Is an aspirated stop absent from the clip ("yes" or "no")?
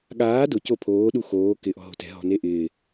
no